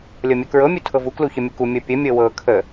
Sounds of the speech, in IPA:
lʲɤmʲɤkɹɤ mʲutʰɤvu kluçəmʲəku mʲɤpʲə mʲɤwɤ kʰə

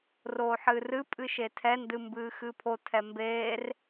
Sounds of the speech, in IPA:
roːħɨːrɨ pʼɨʃetʰɛ ndɨmbɨːxɨpʰo tʰɛmbeːr

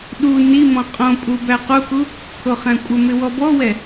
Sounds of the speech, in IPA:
ɗu nimɔ̃ qʼõpʼu bæquku | kʰoχæ̃kʷʼəmɪ wɔbɔwɛ

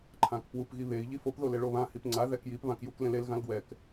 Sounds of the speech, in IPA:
ǃʰãkpwup ɣiβei̯ ʎifop ðoleɭoβã hipŋ͡ǀa ðɛkjip βãkjuklẽlel ɣãlɡwɛk

